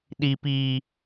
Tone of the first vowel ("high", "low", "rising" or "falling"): high